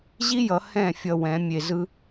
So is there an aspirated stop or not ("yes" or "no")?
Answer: no